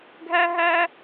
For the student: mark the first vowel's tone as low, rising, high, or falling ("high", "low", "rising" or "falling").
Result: high